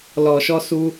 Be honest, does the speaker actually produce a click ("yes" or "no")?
no